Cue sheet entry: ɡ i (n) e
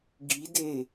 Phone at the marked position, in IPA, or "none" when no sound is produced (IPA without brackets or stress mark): d